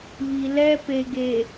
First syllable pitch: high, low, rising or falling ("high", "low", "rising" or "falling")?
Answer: low